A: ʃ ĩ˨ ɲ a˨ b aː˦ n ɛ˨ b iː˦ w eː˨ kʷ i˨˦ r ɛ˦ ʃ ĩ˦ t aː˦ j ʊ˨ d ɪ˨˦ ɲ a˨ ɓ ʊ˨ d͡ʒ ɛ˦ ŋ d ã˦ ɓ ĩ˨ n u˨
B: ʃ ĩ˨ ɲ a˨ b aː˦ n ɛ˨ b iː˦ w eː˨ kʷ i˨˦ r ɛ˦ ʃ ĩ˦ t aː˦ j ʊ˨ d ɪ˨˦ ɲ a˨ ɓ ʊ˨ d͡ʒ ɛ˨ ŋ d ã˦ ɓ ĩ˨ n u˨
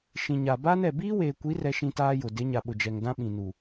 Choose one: B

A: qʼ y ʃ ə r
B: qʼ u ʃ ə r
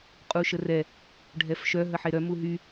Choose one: B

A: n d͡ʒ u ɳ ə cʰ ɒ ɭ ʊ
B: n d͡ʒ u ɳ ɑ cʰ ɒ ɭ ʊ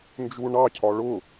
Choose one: B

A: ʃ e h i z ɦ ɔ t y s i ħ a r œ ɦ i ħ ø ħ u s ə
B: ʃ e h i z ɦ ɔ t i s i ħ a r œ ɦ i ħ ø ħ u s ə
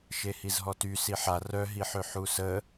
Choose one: A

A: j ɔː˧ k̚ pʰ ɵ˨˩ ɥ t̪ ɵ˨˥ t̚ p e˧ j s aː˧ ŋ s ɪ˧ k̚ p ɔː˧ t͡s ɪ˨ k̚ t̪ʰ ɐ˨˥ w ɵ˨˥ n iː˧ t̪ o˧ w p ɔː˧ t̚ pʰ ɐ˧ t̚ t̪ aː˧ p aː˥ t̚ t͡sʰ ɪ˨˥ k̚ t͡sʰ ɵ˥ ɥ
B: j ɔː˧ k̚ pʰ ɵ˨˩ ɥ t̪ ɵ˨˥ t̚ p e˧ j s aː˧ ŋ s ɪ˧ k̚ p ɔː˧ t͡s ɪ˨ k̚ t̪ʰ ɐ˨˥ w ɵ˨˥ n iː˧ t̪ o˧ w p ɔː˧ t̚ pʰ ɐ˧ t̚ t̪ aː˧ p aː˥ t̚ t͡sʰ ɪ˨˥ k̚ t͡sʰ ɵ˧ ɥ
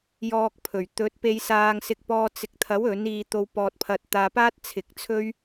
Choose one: A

